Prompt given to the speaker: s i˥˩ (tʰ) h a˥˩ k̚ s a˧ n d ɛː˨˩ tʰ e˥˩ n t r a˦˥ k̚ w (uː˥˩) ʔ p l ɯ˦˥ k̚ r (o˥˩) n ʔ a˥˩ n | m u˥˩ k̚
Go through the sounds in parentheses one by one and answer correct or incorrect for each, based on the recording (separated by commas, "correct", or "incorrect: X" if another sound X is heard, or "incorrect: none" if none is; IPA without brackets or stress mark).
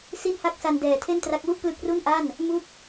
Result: incorrect: n, incorrect: u˥˩, incorrect: u˥˩